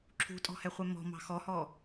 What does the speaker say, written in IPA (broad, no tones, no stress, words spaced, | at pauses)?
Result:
ǁʰṳtʼɔ̤hɛχʷɛ mɔ̤mɑ̤ xɔhɔ